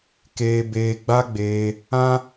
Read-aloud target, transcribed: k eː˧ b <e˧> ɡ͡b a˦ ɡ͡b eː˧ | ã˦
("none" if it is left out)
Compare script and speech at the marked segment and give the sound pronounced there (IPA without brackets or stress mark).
eː˧